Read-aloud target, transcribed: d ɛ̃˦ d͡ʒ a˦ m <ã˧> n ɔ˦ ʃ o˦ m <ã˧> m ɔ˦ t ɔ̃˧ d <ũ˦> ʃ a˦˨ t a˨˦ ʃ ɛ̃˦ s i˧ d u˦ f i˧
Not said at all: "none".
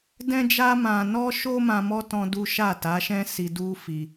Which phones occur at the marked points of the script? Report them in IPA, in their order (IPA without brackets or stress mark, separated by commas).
ã˧, ã˧, u˦